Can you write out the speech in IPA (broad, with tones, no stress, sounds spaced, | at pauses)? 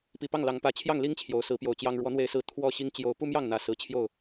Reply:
p i˨˩ p ɑ˥˨ ŋ l ɑ˨˦ ŋ p ä˨˦ t͡ɕʰ j ɑ˥˨ ŋ l i˦ ŋ t͡ɕʰ j o˨˦ ʊ̯ s ɹ̩˨˦ p j o˨˩ ʊ̯ t͡ɕ j ɑ˦ ŋ ɻ w ɔ˨˦ n̪ w e˨˦ ɪ̯ s ɹ̩˨˦ t̪ʰ w ɔ˥˨ ɕ i˦ ŋ t͡ɕ j o˨˦ ʊ̯ p u˦ m j ɑ˥˨ ŋ n̪ ä˨˩ s ɹ̩˨˦ t͡ɕʰ j o˥˨ ʊ̯